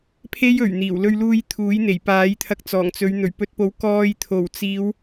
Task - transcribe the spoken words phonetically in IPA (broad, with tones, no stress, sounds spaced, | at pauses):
pʰ e˥ j ɵ˨˩ ɥ n̪ iː˨˩ w l ɵ˧ ɥ l uː˧ j t̪ʰ uː˨˥ j n̪ e˨˩ j p aː˨˥ j t̪ʰ ɐ˧ k̚ t͡s ɔː˨˩ ŋ t͡s ɵ˨˧ ɥ n̪ ɵ˨˩ ɥ p ɵ˧ t̚ p o˨˥ w k ɔː˧ j t̪ʰ o˨˩ w t͡s iː˨˧ w